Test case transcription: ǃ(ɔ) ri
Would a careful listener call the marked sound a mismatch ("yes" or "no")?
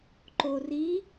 yes